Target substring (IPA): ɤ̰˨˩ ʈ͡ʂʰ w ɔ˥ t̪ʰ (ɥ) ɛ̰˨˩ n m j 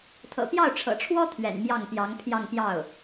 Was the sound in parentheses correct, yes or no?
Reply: yes